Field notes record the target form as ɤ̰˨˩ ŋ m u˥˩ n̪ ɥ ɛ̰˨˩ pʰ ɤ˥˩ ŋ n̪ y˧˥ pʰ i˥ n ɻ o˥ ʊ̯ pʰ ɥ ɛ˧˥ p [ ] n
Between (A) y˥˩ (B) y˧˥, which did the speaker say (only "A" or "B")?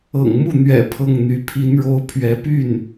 A